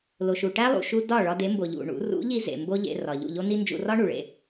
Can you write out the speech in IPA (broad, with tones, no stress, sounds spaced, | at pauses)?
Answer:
l o˨ ʃ u˨ ʈ æ˦ lˠ ṵ˨ ʃ u˧ d ɒ˦˨ ɭ ɒ˧ d e˨˦ m b o˨ ʎ ṵ˨ ɳ ṵ˨˦ r ṵ˨˦ ʎ i˧ z ḛ˨ m b o˦ ʎ ḛ˧ r ɒ˨ ʎ ṵ˦˨ ʎ o˦ n i˦ n d͡ʒ ṵ˧ r ɒ˦ ɳ u˨ ɭ ḛ˧